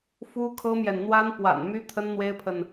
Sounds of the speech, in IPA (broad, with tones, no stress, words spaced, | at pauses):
fu˥kʰɤ˥mjɛ˨n n̪wa˥npwa̰˨˩nmy˥ t̪ʰə˥nn̪we˥ɪ̯pʰə˨n